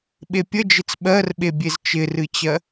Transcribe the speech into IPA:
ɓ e pʲ ə d͡ʒ ɪ t͡s ɓ ɜ r ɓ e bʲ e z t͡ʃ ɪ r ɨ t͡ɕ ɜ

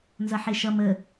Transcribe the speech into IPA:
n z ʌ ħ e ʃ ʌ m ə

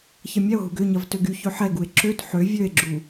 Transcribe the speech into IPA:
ç ɐ mʲ ɛ o̯ ɦ u ɡ ʏ ɲ ɐ v t ø ɡ y ç ø ħ ɛ ɡ u e̯ ǁ ø t ħ ø vʲ ø e̯ ɡ͡ǁ u

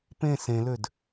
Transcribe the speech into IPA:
p ẽ s ẽ l ø d

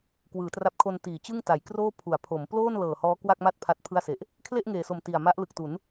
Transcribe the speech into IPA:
k w ɯː˩˦ t r a˦˥ p̚ kʰ o˧ n t iː˩˦ t͡ɕ ɯ˥˩ ŋ t a˩˦ j k r oː˥˩ pʰ u˩˦ a̯ pʰ o˩˦ m p l oː˥˩ n l ɤː˨˩ h ɔː˦˥ k w a˥˩ k̚ m a˥˩ t̚ pʰ a˦˥ t̚ pʰ ɯ˥˩ a̯ s e˨˩ ʔ | kʰ l e˥˩ ʔ ŋ eː˨˩ s o˨˩ m t i˨˩ a̯ m a˦˥ ʔ l ɯ˨˩ k̚ t u˩˦ n

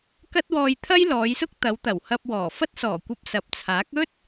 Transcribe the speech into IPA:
k ɐ˥ t̚ w ɔː˧ j t̪ʰ ɐ˥ j l ɔː˨˧ j s ʊ˥ k̚ t̪ ɐ˨˧ w t̪ ɐ˨˩ w h ɐ˧ p̚ w ɔː˨˩ f ɐ˥ t̚ s ɔː˨˩ kʷ ɐ˧ p̚ s ɐ˨ p̚ t͡sʰ aː˨˥ k̚ ɵ˥ t̚

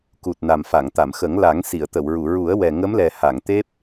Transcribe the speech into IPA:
k u˨˩ t̚ n a˨˩ m f a˨˩˨ ŋ t̪ a˨˩˨ m x ə˨˩˦ ŋ l a˨˩˦ ŋ s i˨˩˨ ə̯ t̪ ə˨˩˨ w ɹ u˨˩˨ ɹ u˨˩˦ ə̯ w ɛ˨˩ ŋ ə˧˥ m l ɛ˨˩ h a˨˩˨ ŋ t̪ e˦˥ p̚

